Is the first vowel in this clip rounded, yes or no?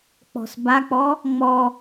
yes